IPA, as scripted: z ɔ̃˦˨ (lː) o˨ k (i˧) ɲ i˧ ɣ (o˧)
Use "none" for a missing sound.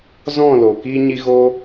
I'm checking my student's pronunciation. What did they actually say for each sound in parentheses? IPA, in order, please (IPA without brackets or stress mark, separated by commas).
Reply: l, iː˧, o˧